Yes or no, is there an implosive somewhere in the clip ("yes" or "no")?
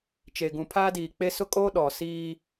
yes